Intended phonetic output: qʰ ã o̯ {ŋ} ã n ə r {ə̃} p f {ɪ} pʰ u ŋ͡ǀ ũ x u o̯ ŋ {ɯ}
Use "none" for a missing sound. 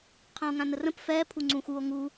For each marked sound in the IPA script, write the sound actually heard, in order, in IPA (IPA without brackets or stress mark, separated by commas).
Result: ŋ, ə̃, ɛ, u